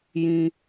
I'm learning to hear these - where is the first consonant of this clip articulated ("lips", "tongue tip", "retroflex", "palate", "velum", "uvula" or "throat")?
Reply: palate